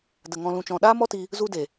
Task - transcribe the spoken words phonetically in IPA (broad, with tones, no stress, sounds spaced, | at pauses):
d ə˨ ŋ ɔ̃˧ l ũ˧ t͡ʃ ɔ̃˧ ɗ aː˦ m ɔ˦ t i˧ | z u˧ d e˨